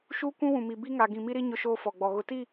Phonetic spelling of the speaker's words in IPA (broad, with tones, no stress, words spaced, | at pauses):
ʃuː˦kʷũ˦wũ˨mi˨ bi˦ŋa˨ ɡĩ˨mi˦ɾi˦ ɲʊ˦ʃoː˦fɔ˨ɡ͡bɔ˨ ɣʊ˨ti˦˨